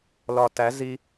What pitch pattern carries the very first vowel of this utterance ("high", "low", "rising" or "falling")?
low